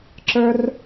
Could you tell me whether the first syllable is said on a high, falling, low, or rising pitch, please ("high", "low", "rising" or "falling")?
high